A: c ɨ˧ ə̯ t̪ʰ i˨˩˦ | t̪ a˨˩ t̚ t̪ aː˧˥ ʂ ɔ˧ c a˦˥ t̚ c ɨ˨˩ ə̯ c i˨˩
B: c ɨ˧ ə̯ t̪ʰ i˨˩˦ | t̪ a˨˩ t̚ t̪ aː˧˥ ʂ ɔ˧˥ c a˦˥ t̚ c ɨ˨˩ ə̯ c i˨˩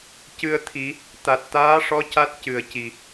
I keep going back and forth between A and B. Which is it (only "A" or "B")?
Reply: B